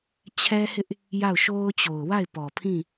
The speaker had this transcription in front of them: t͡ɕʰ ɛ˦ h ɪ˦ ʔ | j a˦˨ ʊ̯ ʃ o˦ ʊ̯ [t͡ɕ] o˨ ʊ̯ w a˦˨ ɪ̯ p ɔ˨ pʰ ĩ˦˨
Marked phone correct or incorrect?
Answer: correct